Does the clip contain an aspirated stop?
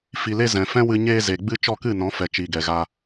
no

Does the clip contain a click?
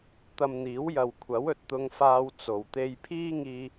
no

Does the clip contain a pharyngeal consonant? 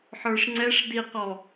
yes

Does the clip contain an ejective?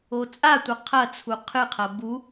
yes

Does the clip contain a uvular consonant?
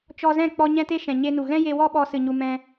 no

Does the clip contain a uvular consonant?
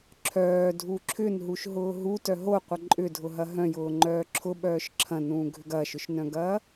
yes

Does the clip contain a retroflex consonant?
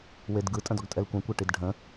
yes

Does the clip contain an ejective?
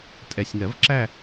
yes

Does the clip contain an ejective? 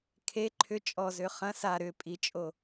yes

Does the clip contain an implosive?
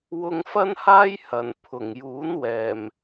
no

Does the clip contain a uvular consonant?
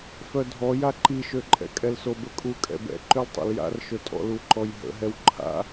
no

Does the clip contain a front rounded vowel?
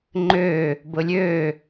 yes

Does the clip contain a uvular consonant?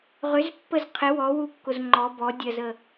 yes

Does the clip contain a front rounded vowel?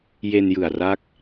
no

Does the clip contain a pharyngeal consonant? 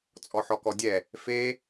yes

